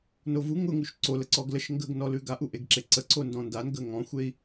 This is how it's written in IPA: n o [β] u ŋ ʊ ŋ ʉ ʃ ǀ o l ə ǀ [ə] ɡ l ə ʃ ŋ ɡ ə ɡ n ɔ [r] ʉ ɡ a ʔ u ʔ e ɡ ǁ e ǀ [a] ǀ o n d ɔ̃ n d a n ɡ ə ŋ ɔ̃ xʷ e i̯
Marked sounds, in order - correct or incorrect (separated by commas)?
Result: incorrect, incorrect, incorrect, incorrect